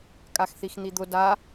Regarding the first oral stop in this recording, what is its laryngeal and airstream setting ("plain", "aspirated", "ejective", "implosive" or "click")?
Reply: ejective